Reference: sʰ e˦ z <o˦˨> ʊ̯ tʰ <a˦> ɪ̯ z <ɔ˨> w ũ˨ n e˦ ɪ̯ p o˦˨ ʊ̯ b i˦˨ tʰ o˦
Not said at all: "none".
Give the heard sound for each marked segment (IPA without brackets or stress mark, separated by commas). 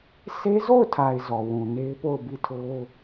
o˦˨, a˨, ɔ˨